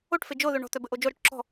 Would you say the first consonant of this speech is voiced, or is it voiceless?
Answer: voiceless